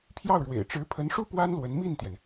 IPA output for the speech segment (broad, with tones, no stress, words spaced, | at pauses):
pʰjɑ˥˩ʊ̯ɻwḛ˨˩ɪ̯ ʈ͡ʂɻ̩˧˥pʰə˧˥nʂu˥ pwa˥n lwə˧˥nmi˥˩nt̪jɛ˩n